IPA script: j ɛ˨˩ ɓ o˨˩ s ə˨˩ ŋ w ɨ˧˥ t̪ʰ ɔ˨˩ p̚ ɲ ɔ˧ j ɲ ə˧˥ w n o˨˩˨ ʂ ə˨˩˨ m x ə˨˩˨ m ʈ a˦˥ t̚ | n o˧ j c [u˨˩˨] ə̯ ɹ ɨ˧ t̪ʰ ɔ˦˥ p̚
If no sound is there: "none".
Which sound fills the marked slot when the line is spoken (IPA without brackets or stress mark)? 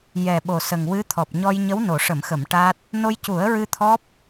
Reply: u˨˩˦